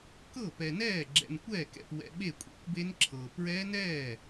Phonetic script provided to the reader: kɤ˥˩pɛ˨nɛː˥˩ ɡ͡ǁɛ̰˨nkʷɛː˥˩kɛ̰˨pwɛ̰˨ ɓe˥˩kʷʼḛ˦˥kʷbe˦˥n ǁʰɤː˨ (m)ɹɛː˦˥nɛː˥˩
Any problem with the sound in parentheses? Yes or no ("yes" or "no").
yes